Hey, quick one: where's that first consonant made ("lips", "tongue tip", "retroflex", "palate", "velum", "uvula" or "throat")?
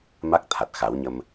lips